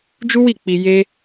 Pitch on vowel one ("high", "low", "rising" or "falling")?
high